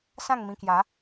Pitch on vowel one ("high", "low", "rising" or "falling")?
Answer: falling